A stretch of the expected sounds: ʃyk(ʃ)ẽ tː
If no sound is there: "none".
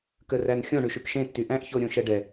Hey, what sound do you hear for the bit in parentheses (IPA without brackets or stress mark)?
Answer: ʃ